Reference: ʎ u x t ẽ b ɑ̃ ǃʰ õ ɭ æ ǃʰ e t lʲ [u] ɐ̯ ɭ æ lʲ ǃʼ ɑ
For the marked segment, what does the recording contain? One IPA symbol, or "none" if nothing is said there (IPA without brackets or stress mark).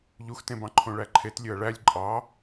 ø